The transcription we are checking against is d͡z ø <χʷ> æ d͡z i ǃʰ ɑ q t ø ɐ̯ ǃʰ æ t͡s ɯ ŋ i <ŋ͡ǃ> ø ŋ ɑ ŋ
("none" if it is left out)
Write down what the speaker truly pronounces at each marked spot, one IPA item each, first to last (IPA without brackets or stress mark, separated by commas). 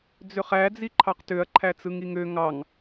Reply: χ, ŋ